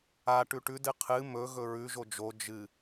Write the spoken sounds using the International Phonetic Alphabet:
a ʈʉʈʉd ɨqʰɨ mɵ ɣɵɹʉ ʒod͡ʒo d͡ʒɨ

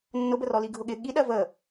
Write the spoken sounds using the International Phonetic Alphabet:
nːʊbə rɔliɡʱʊɠɪ ɠiɗɜ və

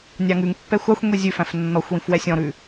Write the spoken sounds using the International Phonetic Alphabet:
nʲɑŋʉŋpːɛ xʷɑxʷ ŋʷizʲʉfæ̃f nːɔxʷwĩf wɛsʲɔ̃ɾʉ

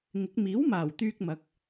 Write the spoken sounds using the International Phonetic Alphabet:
ŋɪ˨˥k̚ miː˨˥wmaː˨˩wt̪yː˧k̚ mɐ˨˥k̚

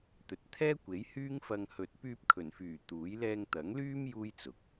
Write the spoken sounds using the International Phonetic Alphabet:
t̪ɵ˨t̚ t̪ʰɛː˥kʷe˨˥jhyː˥ŋfɐ˧ŋ hɵ˨t̚pyː˧p̚kʰɵ˨˩nfyː˨˩ t̪uː˨˥j lɛː˧ŋt̪ɐ˨˥ŋlyː˥m juː˥jt͡sʊ˨˥k̚

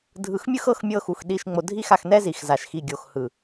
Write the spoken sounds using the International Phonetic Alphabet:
dʱɯ˨xmʲɯ˦xɤ˨˦x mʲɤ˦xu˨xɗi˦˨ʃ ŋ͡mo˨dʱi˦˨xa˨x nɛ˦zi˨x za˨ʃxi˨ɡʲo˨x hɯ˨

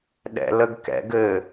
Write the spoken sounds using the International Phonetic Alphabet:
ɗɛ̰ləɡkɛ̰ɡɘ

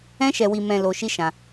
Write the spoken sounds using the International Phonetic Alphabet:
ɛ̃˦ʃɛ˧wi˧ mɛ̃˧ lo˧ʃi˦ʃã˧

